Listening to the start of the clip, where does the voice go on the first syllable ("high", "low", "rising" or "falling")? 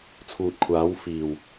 low